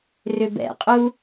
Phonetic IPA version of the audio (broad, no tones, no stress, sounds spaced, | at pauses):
r ʏ b ɛ̰ qʼ u